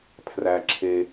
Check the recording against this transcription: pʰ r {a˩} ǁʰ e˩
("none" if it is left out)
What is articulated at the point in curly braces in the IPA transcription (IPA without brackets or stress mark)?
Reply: æ˩